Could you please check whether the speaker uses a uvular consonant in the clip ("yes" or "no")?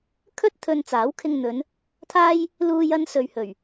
no